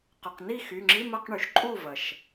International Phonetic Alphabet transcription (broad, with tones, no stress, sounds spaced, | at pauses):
q ʊ˩˧˩ q n i˥˩ x y˩˧˩ ŋ͡ǁ i˧˥˧ m ɐ˧˥˧ q ɳ y˩ ʃ ǃʼ u˥˩ v ɐ˩ ʃ